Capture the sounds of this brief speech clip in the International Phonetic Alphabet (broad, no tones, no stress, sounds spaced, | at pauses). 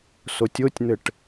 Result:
s o tʲ o tʲ n̪ ɘ ʈ